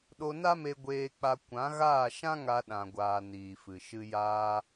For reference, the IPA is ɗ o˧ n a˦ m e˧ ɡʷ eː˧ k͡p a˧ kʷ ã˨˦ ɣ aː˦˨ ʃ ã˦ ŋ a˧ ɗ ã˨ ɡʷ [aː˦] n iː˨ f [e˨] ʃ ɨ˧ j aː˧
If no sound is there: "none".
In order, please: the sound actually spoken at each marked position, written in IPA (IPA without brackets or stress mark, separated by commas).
aː˨, ɨ˨